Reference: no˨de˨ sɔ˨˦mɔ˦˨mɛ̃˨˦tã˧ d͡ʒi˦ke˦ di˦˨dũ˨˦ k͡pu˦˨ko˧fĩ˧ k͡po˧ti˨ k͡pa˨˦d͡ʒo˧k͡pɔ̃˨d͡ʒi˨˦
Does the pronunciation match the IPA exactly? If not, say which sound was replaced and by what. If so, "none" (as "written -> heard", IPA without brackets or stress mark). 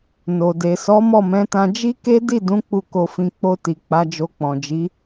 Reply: none